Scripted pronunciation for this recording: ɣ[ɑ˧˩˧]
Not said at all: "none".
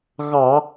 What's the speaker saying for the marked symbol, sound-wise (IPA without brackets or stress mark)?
ɑ˧˩˧